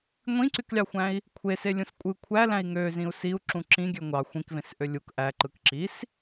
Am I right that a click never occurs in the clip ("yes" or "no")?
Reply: no